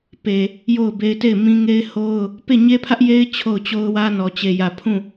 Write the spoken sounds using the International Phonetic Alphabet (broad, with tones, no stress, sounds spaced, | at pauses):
p e˨ | j o˦˨ ʊ̯ b e˦ ɪ̯ t e˦˨ ɪ̯ m ĩ˦ ŋ e˦ ɪ̯ h o˦ ʊ̯ | p e˦˨ ɲ e˦ pʰ ä˦ ʔ j e˦ ɪ̯ t͡ɕʰ o˦˨ ʊ̯ t͡ɕ o˦ ʊ̯ w ä˦ n ɔ˨ t͡ɕ e˨ j ä˨ pʰ ũ˦˨